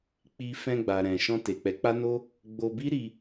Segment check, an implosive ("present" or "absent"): absent